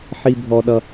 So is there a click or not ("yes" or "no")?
no